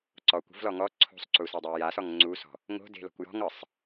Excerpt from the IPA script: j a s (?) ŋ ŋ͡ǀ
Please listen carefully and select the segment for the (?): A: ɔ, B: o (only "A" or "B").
A